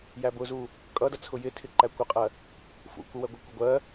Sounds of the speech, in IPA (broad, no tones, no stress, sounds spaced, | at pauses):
j æ b ʊ z u | kʼ ʌ d ʌ t͡sʰ ʊ j ɪ tʰ ɪ ǃ æ kʷ ɪ qʼ ɜ | f ṵ kʷ ə w ɜ ɡʷ ɪ kʷ ʌ ɡʷ ɜ